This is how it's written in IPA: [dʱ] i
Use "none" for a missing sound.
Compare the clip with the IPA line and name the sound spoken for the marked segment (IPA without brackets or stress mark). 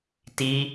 t